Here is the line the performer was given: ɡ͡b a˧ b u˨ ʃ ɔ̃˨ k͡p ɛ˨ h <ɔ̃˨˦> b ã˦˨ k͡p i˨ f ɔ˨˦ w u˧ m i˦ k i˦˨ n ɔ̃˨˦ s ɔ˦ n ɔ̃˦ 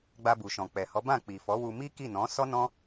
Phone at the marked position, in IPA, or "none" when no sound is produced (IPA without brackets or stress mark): ɔ˨˦